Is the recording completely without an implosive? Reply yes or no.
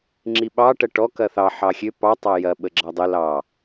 no